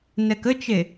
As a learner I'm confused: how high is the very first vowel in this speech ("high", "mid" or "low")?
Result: mid